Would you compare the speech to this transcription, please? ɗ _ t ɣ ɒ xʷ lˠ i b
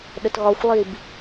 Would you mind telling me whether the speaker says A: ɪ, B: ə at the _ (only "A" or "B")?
B